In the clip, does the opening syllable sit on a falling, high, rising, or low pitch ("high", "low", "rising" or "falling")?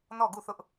falling